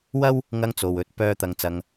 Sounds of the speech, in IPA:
wɐ˥w | ŋɐ˥ŋt͡so˨wɵ˨˥t̚ pœː˥ t̪ɐ˧ŋt͡sɐ˧ŋ

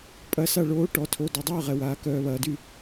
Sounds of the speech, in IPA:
pʼɐ˧˥sa˥˩ɭoː˧˥ ʈɔ˨tʰo˨ dɔ˨dˤœː˥˩ʁɛ˨waː˩˥ kœː˨βɐː˨dy˥˩

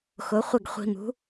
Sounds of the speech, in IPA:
xʊ˩˥χʷɪ˥˩ɡ χʷi̤˧mṳ˩˥

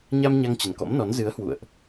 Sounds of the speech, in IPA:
ɲa˧m ɲa˧ŋt͡ɕə˨˩nkɔ̰˧˥mnɔ˨˦n zɨ˨˦ə̯ hwṵ˧˨ə̯ʔ

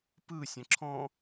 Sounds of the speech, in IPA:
pɯ sʲə̃ǁʰɔ̃

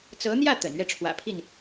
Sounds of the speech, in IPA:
t͡sɤ˧˥n̪jä˥˩ t̪ə̰˨˩nɥɛ˥˩ʈ͡ʂʰwä̰˨˩pʰi˥˩n

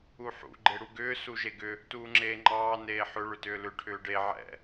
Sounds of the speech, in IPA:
uħṵ ɡ͡ǃeɽuɡʏː suʒeɡʏ | tuːŋ͡ǁeːŋ͡ǃɑː neːħʏ ɭʏtʏːlʏ ʈʰʏːɖe ʕɛ̰

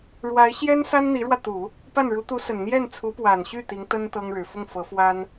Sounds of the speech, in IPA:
ɻwa˧˥ɪ̯ɕjɛ˥nsa˥n n̪i˧˥ɻwä˧t̪u˨˩˦ | pa˥˩nɻu˧˥t̪u˧˥sə˨˩n n̪jɛ˥˩nt͡sʰu˧˥pwa˨˩nɕy˥˩ t̪i˧˥ŋt̪ə˥n t̪ɤ˥ŋɻɻ̩˨˩ fʊ˥˩ŋfɤ˧˥ fwa˥n

